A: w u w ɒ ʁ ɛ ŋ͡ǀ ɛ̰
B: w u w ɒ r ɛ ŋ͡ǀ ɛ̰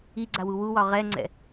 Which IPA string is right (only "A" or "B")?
A